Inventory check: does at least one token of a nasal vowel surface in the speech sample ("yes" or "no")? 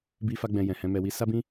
yes